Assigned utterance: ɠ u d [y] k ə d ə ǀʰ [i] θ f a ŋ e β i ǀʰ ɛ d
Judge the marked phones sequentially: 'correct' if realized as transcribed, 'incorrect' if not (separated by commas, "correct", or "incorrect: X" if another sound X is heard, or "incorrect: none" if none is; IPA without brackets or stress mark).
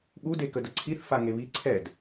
incorrect: e, correct